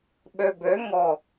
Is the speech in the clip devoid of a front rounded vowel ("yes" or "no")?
no